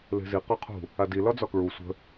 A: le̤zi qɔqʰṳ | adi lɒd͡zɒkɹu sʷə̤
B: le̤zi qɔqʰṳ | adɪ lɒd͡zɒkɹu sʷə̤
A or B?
A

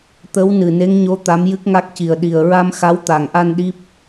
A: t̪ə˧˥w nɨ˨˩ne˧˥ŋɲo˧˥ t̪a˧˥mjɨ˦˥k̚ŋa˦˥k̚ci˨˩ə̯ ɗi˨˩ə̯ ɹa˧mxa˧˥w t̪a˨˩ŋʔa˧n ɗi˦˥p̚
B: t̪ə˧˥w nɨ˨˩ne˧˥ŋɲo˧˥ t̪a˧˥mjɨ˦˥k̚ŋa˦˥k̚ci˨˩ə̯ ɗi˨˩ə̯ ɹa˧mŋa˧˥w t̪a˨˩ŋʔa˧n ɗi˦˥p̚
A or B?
A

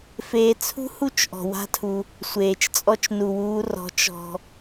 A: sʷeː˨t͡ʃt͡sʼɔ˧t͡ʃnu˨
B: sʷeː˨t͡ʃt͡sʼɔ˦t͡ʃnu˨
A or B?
A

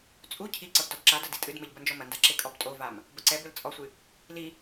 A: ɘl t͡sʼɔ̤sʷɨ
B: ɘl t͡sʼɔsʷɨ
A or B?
B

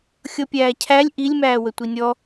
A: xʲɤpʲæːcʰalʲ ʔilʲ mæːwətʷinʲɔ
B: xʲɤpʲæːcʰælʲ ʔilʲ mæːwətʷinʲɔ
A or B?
B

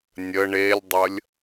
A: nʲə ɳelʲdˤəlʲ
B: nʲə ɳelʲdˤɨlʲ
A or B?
A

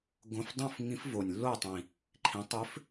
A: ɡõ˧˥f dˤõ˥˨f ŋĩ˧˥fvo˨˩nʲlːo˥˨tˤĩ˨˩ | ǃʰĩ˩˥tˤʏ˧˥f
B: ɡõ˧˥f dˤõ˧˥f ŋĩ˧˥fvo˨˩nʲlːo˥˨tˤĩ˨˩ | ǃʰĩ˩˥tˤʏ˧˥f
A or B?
A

